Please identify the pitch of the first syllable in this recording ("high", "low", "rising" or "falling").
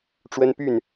high